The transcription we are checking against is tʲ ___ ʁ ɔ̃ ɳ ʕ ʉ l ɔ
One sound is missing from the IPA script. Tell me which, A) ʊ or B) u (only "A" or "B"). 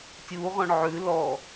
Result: B